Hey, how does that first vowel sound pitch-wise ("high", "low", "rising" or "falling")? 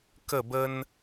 falling